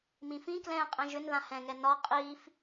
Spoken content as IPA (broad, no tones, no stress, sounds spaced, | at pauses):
m ĩ f ĩ k l ɛ̃ː qʼ ɛ̃ ʒ ʏ n ð ã h ɛ̃ ŋ ɛ n ɒ qʼ iː f